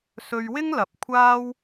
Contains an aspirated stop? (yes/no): yes